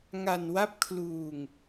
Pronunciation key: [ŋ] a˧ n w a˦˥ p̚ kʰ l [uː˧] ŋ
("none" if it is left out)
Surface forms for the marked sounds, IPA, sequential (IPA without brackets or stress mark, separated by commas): ŋ, uː˧